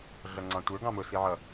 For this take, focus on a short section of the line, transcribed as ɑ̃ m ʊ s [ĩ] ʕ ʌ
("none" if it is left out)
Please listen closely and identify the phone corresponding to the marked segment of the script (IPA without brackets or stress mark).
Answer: i